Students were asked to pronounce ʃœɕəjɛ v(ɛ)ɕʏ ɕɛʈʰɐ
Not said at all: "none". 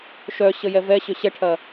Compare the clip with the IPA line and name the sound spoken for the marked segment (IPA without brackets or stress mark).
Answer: ɛ